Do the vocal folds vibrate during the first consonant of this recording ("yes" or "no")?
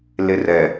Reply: yes